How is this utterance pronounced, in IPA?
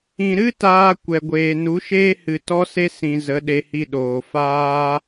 ĩ˨ ɾ ɨ˦ t aː˧ kʷ ɛ˨ ɡʷ eː˨ n u˨˦ ʃ eː˦ h ɨ˧ t ɔ˦ s e˦ s ĩ˧ z ə˨˦ ɗ e˧ h i˧ ɗ oː˨ f aː˦

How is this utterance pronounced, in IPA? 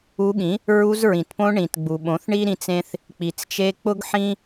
u˧ ɠ ĩ˨˦ | ɹ u˧ z ɹ ĩ˨ t p õ˧ ɳ ĩ˨ t ɡ͡b u˨ ɓ õ˨˦ θ ɳ i˦ ɾ ĩ˧ t͡s ẽ˦ θ | k͡p i˨ t͡s t͡ʃ e˧ k͡p ʊ˦ ɡ ħ ĩ˦

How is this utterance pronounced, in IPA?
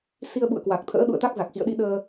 s i˧ ə̯ ɓ ṵ˧˨ ə̯ k w a˨˩ k̚ t̪ʰ ə̰ː˧˥ ɗ ṵ˧˨ ə̯ t̪ a˦˥ k̚ z a˨˩ k̚ x ḭ˧˨ ə̯ ɗ i˧ ɗ əː˧

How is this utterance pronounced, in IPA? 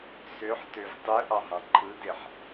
s ø ħ t ø v tˤ ɯ ʔ ɑ ɦ ɑ̃ ǃʰ ɯ d e ħ

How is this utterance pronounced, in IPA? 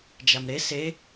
d͡ʒ a m ɾ e s e

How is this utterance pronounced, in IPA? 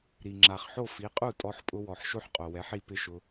ɾ i˩ ŋ͡ǁ a˩ χ ħ o˥˩ f i˩˥ qʼ u˥˩ tʼ ɔ˧ ħ pʼ ʊ˧ w ɔ˩ ħ ʃ o˥ ħ qʼ o˩ w ɛ˩˥ ħ i˧ p ɪ˥˩ ʃ ʊ˧

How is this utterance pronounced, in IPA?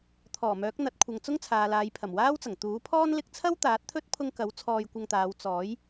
t̪ʰ ɔː˨˩ m œː˨˥ k̚ n̪ ɐ˨˥ t̚ kʷʰ ɐ˨ ŋ t͡s ʊ˥ ŋ t͡sʰ aː˨ l aː˨˧ j pʰ ɐ˨˩ m w aː˥ w t͡s ɐ˨˩ ŋ t̪ uː˨˥ pʰ ɔː˥ n l ɪ˧ k̚ t͡sʰ ɐ˥ w t̪ aː˨˥ t̚ t̪ʰ ɵ˥ t̚ pʰ ʊ˧ ŋ k ɐ˨˥ w t͡sʰ ɔː˧ j kʷ ɐ˧ ŋ t̪ aː˨˧ w t͡s ɔː˨˥ j

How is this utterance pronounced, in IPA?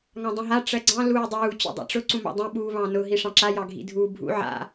ŋ ɑ̃ dˤ ũ ɦ a ʈ͡ʂ ɜ ɡ͡ǀ ɑ̃ l uː dˤ uː t͡ɕ ṵ dˤ a̰ ʈ͡ʂ ʊ ǀ ũ m ɑ̰ dˤ ũ ɓ uː β ɑ̃ n ʊ ɦ i ʂ ɑ̃ ǁ a j ɑ ɡʱ ḭ dʱ uː bʱ ṵ ʕ a̰

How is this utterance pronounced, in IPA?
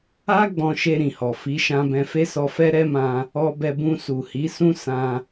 a˦ ɡ͡b ɔ̃˧ ʃ e˧ ɾ ĩ˨ h ɔ˨ f i˨˦ ʃ ã˧ b ɛ̃˧ f e˦ s ɔ˧ f ɛ˦ ɾ ɛ˦ m ã˧ | ɔ˧ b ɛ˧ b ũ˧ s u˨ h i˨˦ s ũ˦ s ã˧

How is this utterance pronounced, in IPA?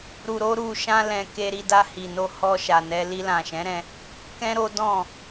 ɾ u˧ ɾ o˦ ɾ u˧ ʃ ã˦ l ɛ̃˧ k e˧ ɾ i˧ d a˧ h i˨ n o˧ h ɔ˧ ʃ a˨ n ɛ˧ l i˧ l ã˨ ʃ ɛ̃˨˦ ɾ ɛ̃˧ | k ɛ̃˦ ɾ o˦ d ɔ̃˦˨

